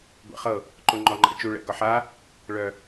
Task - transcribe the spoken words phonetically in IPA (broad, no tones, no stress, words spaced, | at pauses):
ɡʷɛ̰χɤ | ǃoŋ͡ǃɔŋ͡ǃa̰t͡ʃu ɭɛ̰ɡɒħa | ɭœ